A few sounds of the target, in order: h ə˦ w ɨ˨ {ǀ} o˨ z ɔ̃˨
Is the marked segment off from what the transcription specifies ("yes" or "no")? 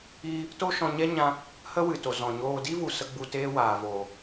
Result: yes